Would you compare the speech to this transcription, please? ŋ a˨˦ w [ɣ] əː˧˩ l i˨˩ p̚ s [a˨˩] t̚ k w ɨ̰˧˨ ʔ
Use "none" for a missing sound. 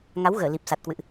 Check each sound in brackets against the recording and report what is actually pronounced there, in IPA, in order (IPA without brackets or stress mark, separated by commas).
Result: ɣ, a˨˩